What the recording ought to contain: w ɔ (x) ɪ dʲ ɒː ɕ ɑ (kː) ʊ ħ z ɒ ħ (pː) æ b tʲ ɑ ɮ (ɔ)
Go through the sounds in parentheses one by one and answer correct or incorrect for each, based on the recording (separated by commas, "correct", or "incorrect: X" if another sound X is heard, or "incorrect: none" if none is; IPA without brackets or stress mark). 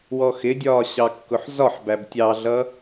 correct, correct, incorrect: b, incorrect: ʌ